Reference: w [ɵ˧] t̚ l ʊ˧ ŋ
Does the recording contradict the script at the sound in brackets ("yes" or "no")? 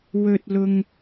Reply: no